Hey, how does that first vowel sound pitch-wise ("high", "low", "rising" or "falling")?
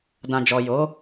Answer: low